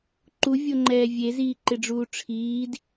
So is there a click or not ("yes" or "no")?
yes